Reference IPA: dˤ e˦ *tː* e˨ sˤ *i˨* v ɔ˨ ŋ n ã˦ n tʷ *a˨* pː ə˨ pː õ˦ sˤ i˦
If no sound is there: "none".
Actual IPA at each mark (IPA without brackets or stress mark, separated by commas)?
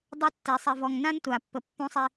tː, i˨, a˨